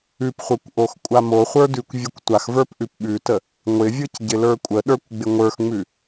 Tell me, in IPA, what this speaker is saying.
ʉpχʷə˞kʷ ʔoxkʷʼamoχʷə˞ dʉkʷvʲʉkʷtʷaxvə˞p ʔʉpɓʉtə | ŋʷɪvʲɯc ɟɪlə˞kʷʼəɗə˞kʷ ɡ͡bɪŋʷə˞xŋ͡mʉ

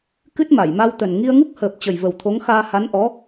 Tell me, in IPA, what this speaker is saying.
kɨ˦˥t̚ ma˧˩jma˧wt̪ə˨˩n ŋi˧ə̯ŋu˦˥k̚həː˨˩p̚ t͡ɕə˨˩jvə˨˩wt̪ʰo˨˦ŋ xaː˧ha˨˦nʔɔ˨˦

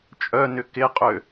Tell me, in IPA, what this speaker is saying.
t͡ʃʼœnʏ kɪqʼø

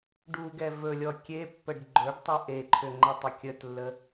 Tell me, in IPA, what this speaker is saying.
ɖuɡɛ vɵlʲɔ kʲepːəɖ ɡ͡ǃɵɖtˤʏ ʔeǃʰʏŋ͡ǃətˤʏ kʲətlːə

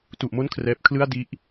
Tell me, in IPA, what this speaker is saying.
tu˨˩ʔmo˥˩nkʰrɛː˨˩p̚ kʰlɯ˥˩a̯ di˦˥ʔ

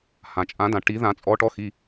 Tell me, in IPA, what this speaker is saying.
hã˩t͡ʃʼã˨˩˦dã˩ ʈi˨˩˦ðã˨˩˦t͡sʼɔ˨˦ ʈɔ˨˦xi˩˧˩

